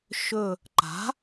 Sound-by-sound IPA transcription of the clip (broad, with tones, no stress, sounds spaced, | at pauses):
ʃ ɵ˧˩ | ǃ a̤˩˥